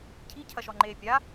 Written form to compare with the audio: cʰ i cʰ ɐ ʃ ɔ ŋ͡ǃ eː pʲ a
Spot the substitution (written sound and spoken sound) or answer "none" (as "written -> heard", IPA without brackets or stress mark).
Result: none